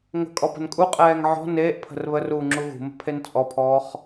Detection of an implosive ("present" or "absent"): absent